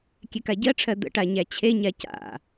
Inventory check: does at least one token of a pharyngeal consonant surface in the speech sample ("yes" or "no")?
no